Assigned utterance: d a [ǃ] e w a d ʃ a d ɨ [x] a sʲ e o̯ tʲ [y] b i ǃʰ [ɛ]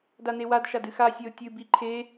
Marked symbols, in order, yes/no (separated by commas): no, yes, no, no